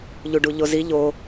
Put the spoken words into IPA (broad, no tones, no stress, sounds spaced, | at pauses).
ʎ u ɖ u ʎ o z i ʎ o